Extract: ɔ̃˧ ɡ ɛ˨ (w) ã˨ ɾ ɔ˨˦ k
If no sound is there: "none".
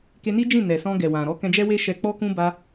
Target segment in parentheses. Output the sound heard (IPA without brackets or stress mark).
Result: w